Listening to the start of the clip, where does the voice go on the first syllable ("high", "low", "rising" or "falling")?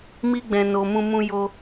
high